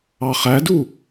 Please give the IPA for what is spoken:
ɑ χ æ d u

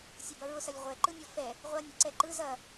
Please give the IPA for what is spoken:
sʲ ɐ b ɐ ɹ ʊ s ɐ lʲ ʁʷ ɛ ǃ ɯ nʲ ɔ f ɛ | ʁʷ ɐ nʲ ɐ ǀ ɛ ǃ ɯ z ɐ

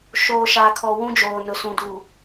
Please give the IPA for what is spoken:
ʃ oː˨ ʃ aː˨ kʰ ɔ˨ w ũ˦ d͡ʒ oː˨ n ʊ˨ s ũ˨ d uː˨

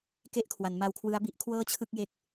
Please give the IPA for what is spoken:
k e˥˩ ʔ kʰ w a˩˦ n m a˧ w kʰ w ɯ˦˥ a̯ b i˥˩ ʔ kʰ w ɤː˥˩ t͡ɕʰ ɯ˥˩ k̚ j e˦˥ k̚

